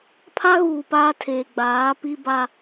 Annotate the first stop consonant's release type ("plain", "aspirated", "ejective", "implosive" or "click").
aspirated